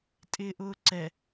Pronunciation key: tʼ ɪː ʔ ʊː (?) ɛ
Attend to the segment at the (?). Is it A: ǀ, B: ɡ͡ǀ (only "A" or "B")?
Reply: A